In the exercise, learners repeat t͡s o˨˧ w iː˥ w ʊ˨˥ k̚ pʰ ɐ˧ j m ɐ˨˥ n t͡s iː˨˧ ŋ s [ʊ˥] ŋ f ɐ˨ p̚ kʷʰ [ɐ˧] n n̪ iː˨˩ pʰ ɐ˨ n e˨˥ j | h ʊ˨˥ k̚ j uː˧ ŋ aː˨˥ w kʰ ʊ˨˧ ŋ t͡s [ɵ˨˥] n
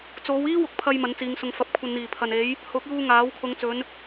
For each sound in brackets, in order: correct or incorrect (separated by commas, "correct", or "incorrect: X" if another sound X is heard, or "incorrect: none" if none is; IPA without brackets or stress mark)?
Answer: incorrect: ʊ˧, correct, incorrect: ɵ˨˧